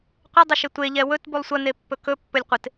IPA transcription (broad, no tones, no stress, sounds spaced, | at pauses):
qʷ ɪ dˤ ɪ ʃ ɪ tʷ e ʎ ɛ w ɵ t b u lˠ sʷ ɐ n e pː ɵ k ɵ pː ɵ lʲ qʷ ɪ t